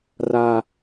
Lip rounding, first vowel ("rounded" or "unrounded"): unrounded